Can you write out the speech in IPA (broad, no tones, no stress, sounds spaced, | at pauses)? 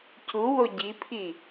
c u w o ɟ i pʰ i